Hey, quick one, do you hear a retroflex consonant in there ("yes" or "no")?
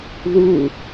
no